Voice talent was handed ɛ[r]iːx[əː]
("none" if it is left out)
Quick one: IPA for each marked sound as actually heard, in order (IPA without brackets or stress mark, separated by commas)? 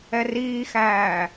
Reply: r, æː